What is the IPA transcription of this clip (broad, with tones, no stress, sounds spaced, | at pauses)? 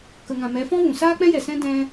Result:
k ə˨ ŋ ã˨ m ɛ˨˦ f ɔ̃˦ v ũ˨ s aː˦ k͡p ɛ̃˦ j ɛ˨ s ɛ̃˦ d ɛ̃˧